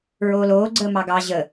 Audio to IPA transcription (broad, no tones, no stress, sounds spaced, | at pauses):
ɹ oː l oː ɡ͡ǀ əː m ɑ ɡ ɑ ʑ ə